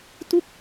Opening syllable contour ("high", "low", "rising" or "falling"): falling